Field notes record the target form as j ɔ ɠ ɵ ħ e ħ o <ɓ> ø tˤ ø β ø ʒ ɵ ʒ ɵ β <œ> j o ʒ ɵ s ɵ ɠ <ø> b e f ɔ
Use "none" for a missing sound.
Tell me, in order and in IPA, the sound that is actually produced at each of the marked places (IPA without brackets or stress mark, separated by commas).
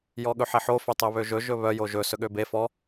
f, œ, ø